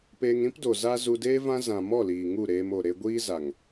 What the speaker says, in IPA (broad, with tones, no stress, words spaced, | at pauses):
pe˧ŋɾĩ˦pdo˨ za˧ zu˧deː˦vã˦ zã˨mɔ˦˨ liː˨ŋu˦˨ɾeː˧mo˨ ɾe˧ɡʷiː˦za˨ŋ